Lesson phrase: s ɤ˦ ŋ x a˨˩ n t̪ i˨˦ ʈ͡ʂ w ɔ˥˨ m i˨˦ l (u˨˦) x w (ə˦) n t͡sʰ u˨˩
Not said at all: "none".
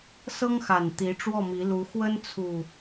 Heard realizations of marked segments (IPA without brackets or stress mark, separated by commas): u˨˦, ə˦